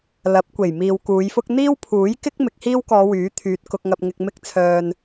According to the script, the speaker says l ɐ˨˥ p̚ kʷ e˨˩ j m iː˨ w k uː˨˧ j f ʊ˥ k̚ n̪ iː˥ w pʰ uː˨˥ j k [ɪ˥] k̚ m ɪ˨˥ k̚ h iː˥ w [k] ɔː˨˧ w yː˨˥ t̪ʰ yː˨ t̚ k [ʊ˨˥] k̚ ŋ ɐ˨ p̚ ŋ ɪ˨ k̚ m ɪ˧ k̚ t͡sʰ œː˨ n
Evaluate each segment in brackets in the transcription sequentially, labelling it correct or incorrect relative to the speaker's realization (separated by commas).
correct, correct, incorrect